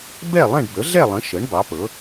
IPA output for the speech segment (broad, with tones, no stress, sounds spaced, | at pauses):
b ɛ˥˨ lˠ ɛ̃˥˨ ɖ b ə˩˥ ɮ ɛ˥˨ lˠ ə̃˩˥ ʃ ə˩˥ ɳ b ɑ˩˥ p ɤ˩˥